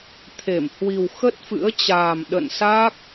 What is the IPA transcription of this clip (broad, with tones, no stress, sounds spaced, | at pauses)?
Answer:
t̪ʰ e˧˩ m h w i˨˩ w x ə˦˥ t̚ f ɨ̰˧˥ ə̯ t͡ɕ aː˨˩ m ɗ ə̰˧˨ n s a˦˥ k̚